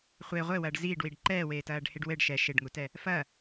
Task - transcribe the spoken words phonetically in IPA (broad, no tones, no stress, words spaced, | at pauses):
χʷe ʁʷɘwɐːɖ ziːɖwiɖ ǃɛːweːtɐːɖheɖ wɘɖ ʃɛ ʃeɖŋutɛ | fɐ